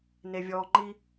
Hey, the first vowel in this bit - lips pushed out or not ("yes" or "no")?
no